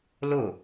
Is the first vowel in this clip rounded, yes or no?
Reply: yes